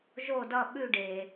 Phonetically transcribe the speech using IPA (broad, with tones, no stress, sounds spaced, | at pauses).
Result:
ʒ o˦˨ d ʌ˦˨ ɓ ʉ˦˨ ɖ e˩